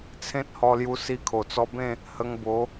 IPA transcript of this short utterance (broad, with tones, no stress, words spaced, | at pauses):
t͡sʰẽ˦t̚hɔ˧lju˧ si˧kʰo˨˩t͡sɔ˧bẽ˥˧ | hə˧ŋbo˨˦